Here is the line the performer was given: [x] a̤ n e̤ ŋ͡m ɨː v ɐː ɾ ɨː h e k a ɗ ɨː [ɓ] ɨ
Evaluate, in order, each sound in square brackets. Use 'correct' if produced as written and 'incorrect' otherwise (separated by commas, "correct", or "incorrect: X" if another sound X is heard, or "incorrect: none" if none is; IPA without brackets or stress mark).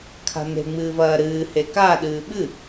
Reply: incorrect: kʰ, correct